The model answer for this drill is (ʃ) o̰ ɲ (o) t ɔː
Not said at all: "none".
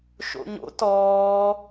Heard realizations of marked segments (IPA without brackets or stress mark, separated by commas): ʃ, o̰